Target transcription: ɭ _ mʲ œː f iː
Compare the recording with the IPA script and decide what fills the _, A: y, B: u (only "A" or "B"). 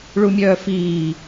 B